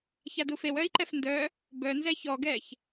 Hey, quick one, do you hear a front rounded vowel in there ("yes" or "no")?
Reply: yes